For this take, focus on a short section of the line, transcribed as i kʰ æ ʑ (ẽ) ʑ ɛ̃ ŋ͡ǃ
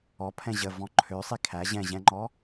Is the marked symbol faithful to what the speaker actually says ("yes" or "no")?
no